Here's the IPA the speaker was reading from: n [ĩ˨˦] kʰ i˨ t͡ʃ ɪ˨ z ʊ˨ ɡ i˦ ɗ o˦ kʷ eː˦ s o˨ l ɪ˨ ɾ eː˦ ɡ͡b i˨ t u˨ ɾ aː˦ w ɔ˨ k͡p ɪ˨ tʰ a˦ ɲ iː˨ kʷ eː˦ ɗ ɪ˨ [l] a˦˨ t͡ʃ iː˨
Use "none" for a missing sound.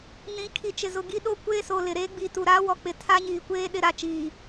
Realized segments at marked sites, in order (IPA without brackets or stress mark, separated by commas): ĩ˨˦, ɾ